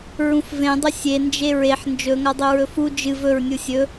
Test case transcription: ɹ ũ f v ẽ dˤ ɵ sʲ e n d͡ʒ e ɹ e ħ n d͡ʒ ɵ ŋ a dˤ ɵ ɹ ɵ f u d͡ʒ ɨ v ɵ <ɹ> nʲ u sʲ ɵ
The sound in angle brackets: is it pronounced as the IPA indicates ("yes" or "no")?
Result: yes